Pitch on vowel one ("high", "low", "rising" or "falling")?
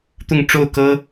falling